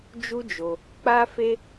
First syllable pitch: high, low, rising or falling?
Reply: high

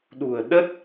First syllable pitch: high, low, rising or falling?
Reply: low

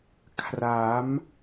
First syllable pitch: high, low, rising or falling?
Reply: rising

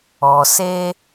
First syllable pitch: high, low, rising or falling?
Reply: low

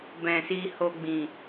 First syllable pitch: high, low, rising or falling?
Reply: low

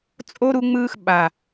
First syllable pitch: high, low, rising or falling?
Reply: high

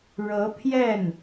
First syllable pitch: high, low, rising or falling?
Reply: rising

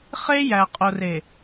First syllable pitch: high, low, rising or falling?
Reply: high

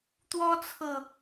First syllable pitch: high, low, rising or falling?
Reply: high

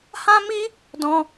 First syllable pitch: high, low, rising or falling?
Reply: high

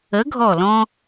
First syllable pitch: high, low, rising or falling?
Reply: rising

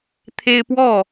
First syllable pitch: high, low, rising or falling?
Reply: high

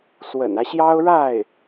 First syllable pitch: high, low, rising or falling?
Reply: low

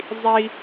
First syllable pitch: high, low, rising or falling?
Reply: low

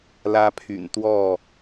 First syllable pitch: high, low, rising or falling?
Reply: high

